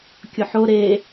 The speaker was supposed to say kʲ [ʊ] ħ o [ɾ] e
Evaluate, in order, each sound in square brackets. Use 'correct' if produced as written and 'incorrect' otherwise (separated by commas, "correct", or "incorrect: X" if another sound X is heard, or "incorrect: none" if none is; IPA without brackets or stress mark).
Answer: correct, correct